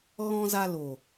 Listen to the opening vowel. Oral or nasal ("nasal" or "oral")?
nasal